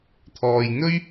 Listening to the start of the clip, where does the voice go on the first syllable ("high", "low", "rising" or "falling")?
low